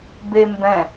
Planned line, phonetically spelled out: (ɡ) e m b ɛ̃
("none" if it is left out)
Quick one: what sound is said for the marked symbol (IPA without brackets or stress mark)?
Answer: b